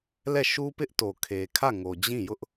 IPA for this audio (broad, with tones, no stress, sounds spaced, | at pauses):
l ɛ˦˨ ʃ u˦ p ɪ˦ ʔ t o˨ kʰ e˨ kʰ ä˦˨ ŋ o˨ d͡ʑ ĩ˦˨ j ʊ˦ ʔ